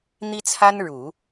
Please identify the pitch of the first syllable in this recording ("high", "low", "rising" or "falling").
high